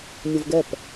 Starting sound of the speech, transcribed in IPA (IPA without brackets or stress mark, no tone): nʲ